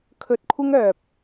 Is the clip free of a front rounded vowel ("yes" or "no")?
no